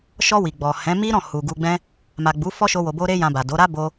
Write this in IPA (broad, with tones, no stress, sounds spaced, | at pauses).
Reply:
ʃ ɔ˧ w i˨ ɡ͡b ɔ˨ h ɛ̃˨˦ m i˦ ɾ ɔ̃˦˨ h u˨ ɡ u˧ ɡ͡b ɛ̃˦ | m a˨ ɡ͡b u˨˦ f ɔ˦ ʃ o˧ w o˨ b o˧ ɾ e˦ j ã˧ b a˨ d o˨˦ ɾ a˦ b o˧